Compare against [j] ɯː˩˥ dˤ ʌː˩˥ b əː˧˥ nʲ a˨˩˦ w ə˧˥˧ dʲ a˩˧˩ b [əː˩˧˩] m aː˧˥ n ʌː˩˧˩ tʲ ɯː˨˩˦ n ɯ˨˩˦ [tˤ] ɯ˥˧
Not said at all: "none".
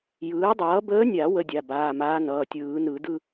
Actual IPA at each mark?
j, aː˩˧˩, d

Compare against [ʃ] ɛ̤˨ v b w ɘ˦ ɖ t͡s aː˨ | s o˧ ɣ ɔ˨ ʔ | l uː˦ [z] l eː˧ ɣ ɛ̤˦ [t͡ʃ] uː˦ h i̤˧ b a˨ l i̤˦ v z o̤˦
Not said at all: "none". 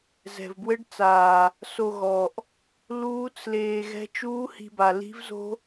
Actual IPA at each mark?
z, t͡s, t͡ʃ

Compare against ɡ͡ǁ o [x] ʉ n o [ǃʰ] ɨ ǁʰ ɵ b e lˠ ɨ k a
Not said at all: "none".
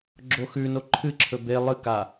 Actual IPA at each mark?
x, ǃʰ

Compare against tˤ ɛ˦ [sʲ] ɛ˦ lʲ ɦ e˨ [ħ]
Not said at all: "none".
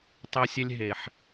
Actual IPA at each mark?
sʲ, ħ

